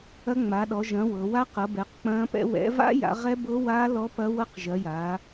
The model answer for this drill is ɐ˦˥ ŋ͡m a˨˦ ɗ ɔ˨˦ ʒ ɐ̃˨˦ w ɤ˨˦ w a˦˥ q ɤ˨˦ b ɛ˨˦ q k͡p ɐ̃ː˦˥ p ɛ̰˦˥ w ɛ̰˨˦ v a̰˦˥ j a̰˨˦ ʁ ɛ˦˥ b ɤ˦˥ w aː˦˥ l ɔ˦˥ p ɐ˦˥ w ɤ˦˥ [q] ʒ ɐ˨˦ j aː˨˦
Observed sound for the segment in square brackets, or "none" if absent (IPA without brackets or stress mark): q